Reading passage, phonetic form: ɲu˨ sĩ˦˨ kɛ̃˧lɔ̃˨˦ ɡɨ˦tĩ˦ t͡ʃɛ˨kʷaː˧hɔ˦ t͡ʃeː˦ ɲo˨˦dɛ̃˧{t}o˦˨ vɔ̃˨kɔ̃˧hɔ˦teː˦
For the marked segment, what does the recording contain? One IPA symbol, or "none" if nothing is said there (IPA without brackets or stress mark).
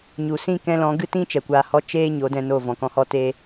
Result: n